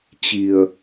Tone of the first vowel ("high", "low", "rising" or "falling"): low